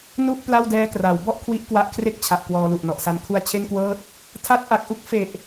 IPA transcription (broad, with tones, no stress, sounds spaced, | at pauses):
n u˥˩ ʔ p l a˥˩ w d ɛː˦˥ k r a˩˦ w b ɔ˥˩ ʔ kʰ w i˦˥ ʔ k w a˦˥ ʔ kʰ r e˥˩ k̚ t͡ɕʰ a˨˩ ʔ k w ɔː˧ l u˨˩ ʔ n ɔ˨˩ ʔ s a˧ n kʰ u˧ a̯ t͡ɕʰ e˥˩ n k w ɤː˥˩ t̚ | tʰ a˦˥ t̚ ʔ a˨˩ k̚ ʔ u˦˥ k̚ f e˨˩ ʔ